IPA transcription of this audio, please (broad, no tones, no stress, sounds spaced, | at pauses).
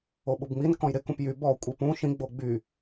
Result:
o ɓ u b ŋ͡m i n k ɔ̃ j ɾ ɪ k ũ p j y b ɔ kʷʼ i p ũ ʃ ĩ ɡ͡b o ɡ͡b y